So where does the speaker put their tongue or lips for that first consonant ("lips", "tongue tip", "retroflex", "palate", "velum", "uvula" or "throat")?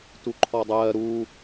tongue tip